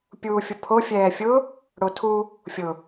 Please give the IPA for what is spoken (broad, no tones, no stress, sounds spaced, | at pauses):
pʲ uː fʲ ʊ pʰ o fʲ ɛː fʲ ʊ | ɽ o tʰ u | fʲ ʊ